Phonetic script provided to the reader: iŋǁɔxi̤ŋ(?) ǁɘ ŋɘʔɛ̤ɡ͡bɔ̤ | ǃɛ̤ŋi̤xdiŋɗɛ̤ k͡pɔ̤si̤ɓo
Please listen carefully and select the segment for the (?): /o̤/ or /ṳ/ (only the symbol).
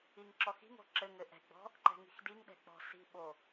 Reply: o̤